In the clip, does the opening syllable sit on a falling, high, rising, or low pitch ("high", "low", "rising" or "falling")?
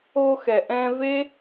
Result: high